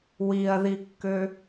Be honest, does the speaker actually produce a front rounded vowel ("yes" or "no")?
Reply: yes